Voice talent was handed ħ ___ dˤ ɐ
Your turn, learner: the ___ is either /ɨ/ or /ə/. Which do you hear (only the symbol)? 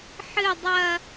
ɨ